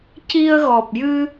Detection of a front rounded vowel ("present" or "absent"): absent